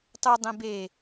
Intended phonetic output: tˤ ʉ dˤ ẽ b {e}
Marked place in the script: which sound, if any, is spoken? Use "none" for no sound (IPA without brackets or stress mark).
e